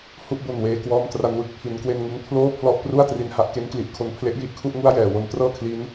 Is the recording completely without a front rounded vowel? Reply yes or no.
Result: yes